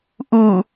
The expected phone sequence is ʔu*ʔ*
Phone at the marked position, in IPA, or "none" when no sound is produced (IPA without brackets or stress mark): none